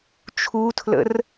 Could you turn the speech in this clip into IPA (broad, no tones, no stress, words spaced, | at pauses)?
t͡ʃʰutʰlə̰r